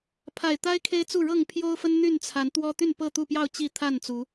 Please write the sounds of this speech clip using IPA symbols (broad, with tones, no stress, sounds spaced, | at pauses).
pʰ a˨˩ ɪ̯ t̪ a˦ ɪ̯ kʰ e˦ ɪ̯ t͡s u˥˨ ɻ ɤ˥˨ ŋ pʰ j o˦ ʊ̯ f ə˦ n n̪ y˥˨ n t͡sʰ a˨˦ n t̪ w ɔ˦ t̪ y˥˨ n p ɤ˥˨ t̪ u˥˨ p j ɑ˥˨ ʊ̯ t͡ɕ i˥˨ t̪ʰ a˥˨ n t͡s u˨˦